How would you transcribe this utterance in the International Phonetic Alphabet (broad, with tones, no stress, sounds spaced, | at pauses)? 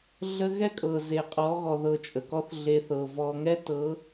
ɮ ə˦ ɣ ɛ˦ kʼ ɤ˨ z e˨ qʼ ɔ˨˦ ɣ ɔ˨ ð ɤ˧ t͡ʃʼ ə˨ k ɔ˦ θ ɮ e˧ θ ɤ˨ v ɔ˧ ŋ ɛ˦ t ɤ˨˦